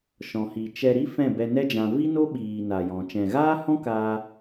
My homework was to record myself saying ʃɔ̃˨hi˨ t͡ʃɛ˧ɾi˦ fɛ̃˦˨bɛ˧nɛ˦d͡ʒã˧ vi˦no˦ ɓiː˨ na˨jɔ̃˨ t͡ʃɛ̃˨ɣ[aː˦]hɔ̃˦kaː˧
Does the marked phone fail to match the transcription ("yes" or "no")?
no